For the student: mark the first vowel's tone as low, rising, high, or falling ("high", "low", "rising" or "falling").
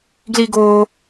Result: high